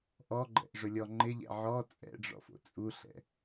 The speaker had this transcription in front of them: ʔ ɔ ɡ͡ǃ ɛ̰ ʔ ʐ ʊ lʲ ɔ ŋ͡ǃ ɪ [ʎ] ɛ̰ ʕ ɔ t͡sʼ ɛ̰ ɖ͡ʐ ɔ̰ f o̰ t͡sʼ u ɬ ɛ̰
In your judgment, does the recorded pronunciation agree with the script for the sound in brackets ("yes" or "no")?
yes